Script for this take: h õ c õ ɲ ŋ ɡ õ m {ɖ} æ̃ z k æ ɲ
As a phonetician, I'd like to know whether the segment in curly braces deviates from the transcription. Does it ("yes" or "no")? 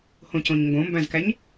yes